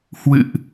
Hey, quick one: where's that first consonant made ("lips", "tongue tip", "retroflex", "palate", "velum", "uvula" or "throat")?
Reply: throat